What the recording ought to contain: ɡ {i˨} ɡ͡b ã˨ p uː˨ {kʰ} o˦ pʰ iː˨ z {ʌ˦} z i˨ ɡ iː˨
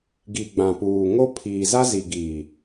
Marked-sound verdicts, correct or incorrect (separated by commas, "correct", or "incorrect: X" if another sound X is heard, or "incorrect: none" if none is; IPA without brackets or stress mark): correct, incorrect: ŋ, incorrect: a˦